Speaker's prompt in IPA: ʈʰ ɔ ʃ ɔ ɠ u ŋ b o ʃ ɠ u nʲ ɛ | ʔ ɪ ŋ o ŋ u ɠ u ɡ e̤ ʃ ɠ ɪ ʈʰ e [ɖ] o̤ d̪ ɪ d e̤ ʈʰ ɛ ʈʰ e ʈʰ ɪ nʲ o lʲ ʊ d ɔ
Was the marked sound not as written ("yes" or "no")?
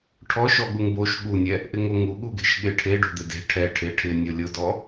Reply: no